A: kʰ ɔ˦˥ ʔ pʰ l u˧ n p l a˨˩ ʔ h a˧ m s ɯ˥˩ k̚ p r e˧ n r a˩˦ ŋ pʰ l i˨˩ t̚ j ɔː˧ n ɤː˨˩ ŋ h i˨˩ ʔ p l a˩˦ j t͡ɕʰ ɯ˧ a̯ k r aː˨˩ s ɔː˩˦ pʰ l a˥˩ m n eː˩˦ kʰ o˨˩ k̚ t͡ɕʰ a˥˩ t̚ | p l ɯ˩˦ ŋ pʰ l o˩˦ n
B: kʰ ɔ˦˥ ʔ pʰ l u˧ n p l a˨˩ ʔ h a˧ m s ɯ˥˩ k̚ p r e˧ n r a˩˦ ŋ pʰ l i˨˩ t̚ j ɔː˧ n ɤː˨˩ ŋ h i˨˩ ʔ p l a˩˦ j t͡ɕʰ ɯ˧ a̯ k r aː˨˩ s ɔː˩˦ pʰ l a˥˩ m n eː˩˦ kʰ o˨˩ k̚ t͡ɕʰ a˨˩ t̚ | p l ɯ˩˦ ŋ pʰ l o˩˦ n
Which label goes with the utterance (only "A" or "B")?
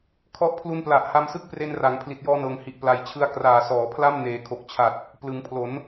B